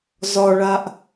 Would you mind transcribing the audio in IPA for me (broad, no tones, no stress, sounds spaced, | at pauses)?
z ɒ ɭ a ʔ